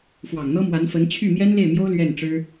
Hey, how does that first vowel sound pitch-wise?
low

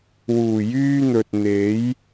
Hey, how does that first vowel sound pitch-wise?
low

